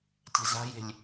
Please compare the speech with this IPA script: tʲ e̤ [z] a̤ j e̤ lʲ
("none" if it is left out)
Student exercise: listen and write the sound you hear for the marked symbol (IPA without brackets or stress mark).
z